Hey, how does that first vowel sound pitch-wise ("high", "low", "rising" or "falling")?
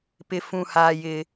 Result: high